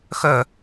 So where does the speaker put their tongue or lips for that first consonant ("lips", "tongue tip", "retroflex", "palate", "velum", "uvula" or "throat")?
velum